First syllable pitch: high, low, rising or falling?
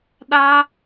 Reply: high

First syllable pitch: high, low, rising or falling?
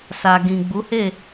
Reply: low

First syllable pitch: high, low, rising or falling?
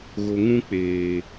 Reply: low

